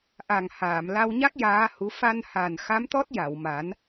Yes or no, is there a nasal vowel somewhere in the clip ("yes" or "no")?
no